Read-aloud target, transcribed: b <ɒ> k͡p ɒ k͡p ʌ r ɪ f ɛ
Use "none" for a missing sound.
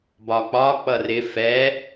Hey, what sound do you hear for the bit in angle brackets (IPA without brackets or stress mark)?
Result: ɒ